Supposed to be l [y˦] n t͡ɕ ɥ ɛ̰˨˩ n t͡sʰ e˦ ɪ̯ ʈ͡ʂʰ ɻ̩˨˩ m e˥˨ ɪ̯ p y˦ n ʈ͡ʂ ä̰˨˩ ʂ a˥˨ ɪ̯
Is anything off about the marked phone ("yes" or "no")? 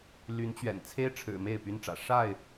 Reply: yes